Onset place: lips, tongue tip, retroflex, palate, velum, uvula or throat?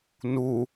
tongue tip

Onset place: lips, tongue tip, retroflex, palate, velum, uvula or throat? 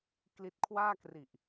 velum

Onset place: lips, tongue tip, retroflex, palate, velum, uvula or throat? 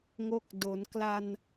velum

